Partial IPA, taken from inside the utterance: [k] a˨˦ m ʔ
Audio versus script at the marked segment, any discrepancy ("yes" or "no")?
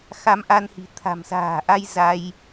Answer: yes